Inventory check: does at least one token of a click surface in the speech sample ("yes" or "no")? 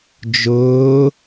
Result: no